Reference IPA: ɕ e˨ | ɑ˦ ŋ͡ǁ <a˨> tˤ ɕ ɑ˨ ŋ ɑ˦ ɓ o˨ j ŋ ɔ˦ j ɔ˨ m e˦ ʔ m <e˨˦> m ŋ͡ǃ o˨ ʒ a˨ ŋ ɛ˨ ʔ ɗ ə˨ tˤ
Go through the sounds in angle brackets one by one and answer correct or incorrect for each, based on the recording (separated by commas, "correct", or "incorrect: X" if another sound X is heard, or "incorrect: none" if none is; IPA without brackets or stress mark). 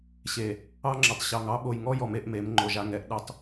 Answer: incorrect: ə˨, correct